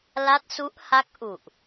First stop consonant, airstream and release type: plain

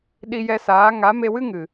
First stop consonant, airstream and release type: implosive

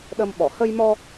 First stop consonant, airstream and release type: implosive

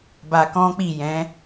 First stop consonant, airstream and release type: plain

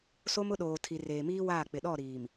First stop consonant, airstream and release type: implosive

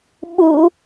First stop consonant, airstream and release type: implosive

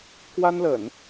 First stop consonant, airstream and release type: plain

